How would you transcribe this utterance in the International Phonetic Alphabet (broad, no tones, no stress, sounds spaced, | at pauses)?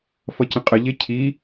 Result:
f ʌ c ə̃ qʼ ə ʎ e cʰ i